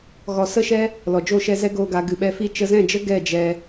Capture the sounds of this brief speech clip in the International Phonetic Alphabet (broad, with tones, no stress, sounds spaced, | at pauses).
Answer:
ɣ ɔ˨ s ə˧ ʃ ɛ˧ | l ɔ˨ d͡ʒ o˦˨ ʃ ɛ˧ z ɛ˦ ɡ oː˧ ɡ a˨˦ ɡ ɨ˨ ɓ ɛ˧ f i˦ t͡ʃ ə˧ z ɛ̃˦˨ d͡ʒ ə˦ ɡ ɛ˦˨ d͡ʒ ɛ˧